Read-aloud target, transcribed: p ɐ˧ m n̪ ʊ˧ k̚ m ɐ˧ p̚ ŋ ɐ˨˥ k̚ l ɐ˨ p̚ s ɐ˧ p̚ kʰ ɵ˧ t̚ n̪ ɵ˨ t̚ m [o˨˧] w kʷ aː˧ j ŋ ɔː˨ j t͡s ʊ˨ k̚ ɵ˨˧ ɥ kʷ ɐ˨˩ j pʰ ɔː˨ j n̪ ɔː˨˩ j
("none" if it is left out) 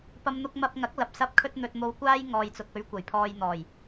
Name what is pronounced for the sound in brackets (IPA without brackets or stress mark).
o˨˧